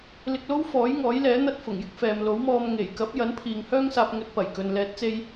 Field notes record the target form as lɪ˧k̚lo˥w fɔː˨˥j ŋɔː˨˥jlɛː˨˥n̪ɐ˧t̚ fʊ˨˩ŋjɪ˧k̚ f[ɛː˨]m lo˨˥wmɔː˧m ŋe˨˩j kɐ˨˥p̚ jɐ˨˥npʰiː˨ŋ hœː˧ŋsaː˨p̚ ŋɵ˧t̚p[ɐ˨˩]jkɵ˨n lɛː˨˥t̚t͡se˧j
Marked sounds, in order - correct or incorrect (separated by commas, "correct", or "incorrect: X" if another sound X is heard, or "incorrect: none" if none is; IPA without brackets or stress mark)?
correct, correct